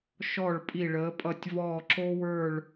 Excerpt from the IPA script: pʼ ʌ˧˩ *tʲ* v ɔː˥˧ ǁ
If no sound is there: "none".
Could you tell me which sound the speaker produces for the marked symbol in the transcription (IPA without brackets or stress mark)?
tʲ